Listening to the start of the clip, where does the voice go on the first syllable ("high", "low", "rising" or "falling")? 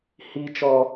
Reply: high